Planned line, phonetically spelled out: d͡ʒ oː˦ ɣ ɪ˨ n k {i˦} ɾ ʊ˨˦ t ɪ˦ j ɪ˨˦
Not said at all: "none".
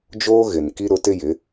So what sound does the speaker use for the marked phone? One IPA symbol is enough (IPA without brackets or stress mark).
i˦